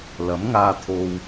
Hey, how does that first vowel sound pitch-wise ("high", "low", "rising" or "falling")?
rising